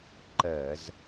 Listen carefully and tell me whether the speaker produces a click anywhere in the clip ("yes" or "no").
yes